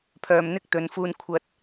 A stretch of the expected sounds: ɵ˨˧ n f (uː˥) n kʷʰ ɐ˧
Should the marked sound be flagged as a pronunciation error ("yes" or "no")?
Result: yes